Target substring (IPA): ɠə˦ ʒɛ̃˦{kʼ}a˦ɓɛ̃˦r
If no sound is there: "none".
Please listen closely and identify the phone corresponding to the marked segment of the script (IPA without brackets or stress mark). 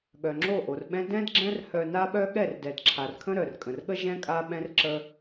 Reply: kʼ